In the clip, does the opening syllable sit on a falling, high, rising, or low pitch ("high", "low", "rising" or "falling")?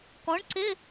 rising